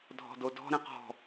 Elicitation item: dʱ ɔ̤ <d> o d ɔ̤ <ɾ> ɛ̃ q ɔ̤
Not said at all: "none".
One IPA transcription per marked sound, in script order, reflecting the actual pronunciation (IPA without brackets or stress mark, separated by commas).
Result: d, ɾ